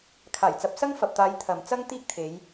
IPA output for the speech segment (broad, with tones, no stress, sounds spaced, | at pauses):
kʰ aː˨˩ j t͡s ɐ˨ p̚ s ɐ˥ ŋ f ɐ˨ p̚ t̪ aː˨˧ j t̪ʰ ɐ˨ m t͡s ɐ˥ ŋ t̪ iː˥ k̚ t̪ʰ e˨˧ j